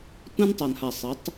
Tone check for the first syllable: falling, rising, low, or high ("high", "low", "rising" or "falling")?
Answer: high